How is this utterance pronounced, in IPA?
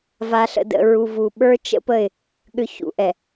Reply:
v a˨ ɬ ə̰˨ d ə̰˨ ɹ u˨ v u˨ ɓ ə˞˦ t͡ʃ ə̰˦ p ə˦˨ ɪ̯ | ɠ ʏ˨ ç ṵ˨ ʔ ɛ˨

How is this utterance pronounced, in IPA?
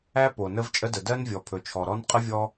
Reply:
æ˥ p o˩ n ə˥ v t͡ʃʼ ə˥ d ə˩ d ɜ˥ n vʲ ɔ˩ pʰ ɵ˩ t͡ʃʰ ɔ˩ ɾ ɔ˥ n qʼ ə˥ vʲ ɔ˥

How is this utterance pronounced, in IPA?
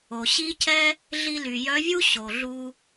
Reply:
o˩ ɕ i˥ cʰ ɛ˥ | ɮ i˧ l y˩ j œ˧˥ vʲ u˥ ɕ o˩ ɮ u˧

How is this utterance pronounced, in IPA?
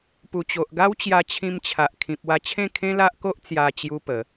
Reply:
p u˨˩ t͡ɕ o˨ ʔ ɡ a˦ w t͡ɕ j a˧ t͡ɕʰ ĩ˧ m t͡ɕʰ a˨ ʔ kʰ ĩ˨ p̚ w a˧ t͡ɕʰ ẽ˥˧ kʰ ẽ˦ l a˦ ʔ k o˦ ʔ t͡s j a˧ t͡ɕ j u˦ p ə˨˦

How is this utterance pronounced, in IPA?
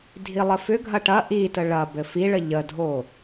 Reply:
dʱ i lˠ ə f ʏ ɡʱ ɐ ʈ ɐ ʔ i t ə ɭ ɐ b ɘ f i ɭ ə ʎ ə dʱ o

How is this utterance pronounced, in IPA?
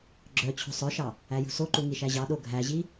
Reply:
ɡ͡ǁ œ t͡ɕʰ ṳ sˤ œ ʃ ɑ | æ j ṳ s o ǃ u ŋ i ʃ æ ʑ ɑ ɗ o ɡʱ æ ʑ i

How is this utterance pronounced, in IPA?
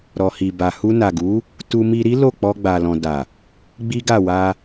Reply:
ɾ ɔ˨ h i˨ b a˨ h u˧ n a˨ ɡ u˨˦ | t u˧ m i˧ ɾ i˦ l o˦˨ k͡p ɔ˧ ɡ͡b a˨ l ɔ̃˨ d a˨ | ɡ͡b i˦ ɡ a˦˨ w a˧

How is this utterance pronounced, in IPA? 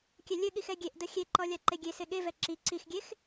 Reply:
kʲ ɛ lʲ ɘ ɠ i x ɛ ɡʲ e ʔ d ə xʲ e ǃ ɔ lʲ a ǃ e ɡʲ e s e ɠ e v ɛ ǁ i ǀ i x ɡʲ e x

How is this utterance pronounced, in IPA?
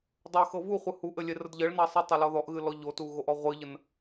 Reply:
dˤ o x ɤ v u χʷ ɨ h u ʔ ɘ lʲ e r ə d ʎ ɘ ɭ n ɑ sˤ ɤ tˤ o l ɔ ð ɔ ʔ ɣ ɨ l ɔ ʎ o t u ɣ o ʔ ɔ ʁʷ ɨ ʎ ə n

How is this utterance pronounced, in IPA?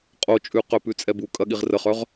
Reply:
qʼ o t͡ʃʼ ʉ q œ p ʉ t͡sʼ ɛ b u kʼ ɐ ɠ i ʁ r ə χ œ ʁ

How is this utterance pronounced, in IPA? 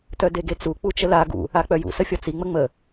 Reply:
t œ d e ɡ e t͡s u k͡p u t͡ʃ ə l a ɡ ṵ | a k͡p œ j ṵ s ə fʲ ɒ t͡s i ŋ͡m ə ŋ͡m ə

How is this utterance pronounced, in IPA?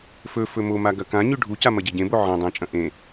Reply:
f ɵ f ɵ m o m a ɡ ɐ k ã ɲ ʉ ɖʱ u c a m ɐ ɟ e ɟ ẽ b o ʕ ɐ̃ dˤ ẽ t͡ʃʼ ɐ̃ ʔ ẽ

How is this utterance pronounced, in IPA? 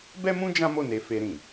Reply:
b ɛ˦ m ũ˦ d͡ʒ ã˦ m o˦˨ n e˨˦ f e˧ ɾ ĩ˨

